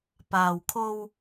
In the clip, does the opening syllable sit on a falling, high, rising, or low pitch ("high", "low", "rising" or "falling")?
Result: low